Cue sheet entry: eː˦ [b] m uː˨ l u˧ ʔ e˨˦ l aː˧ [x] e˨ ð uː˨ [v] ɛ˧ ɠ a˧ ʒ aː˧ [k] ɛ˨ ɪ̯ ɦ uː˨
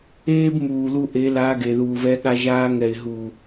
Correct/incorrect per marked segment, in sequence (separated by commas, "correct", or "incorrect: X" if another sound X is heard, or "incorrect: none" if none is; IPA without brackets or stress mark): correct, incorrect: ɡ, correct, incorrect: ŋ